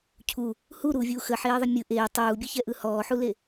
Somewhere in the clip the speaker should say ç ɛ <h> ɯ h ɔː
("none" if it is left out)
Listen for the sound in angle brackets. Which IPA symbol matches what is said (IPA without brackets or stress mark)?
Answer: ʔ